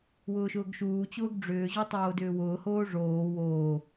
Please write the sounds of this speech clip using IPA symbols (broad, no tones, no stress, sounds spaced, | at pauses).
w ʊː ʃ ʊː ɡ ʃ uː t͡ɕ ʊː ɡ ɖ͡ʐ ʏː ʑ o tˤ oː d ʏː w ʊː h oː ʐ oː w oː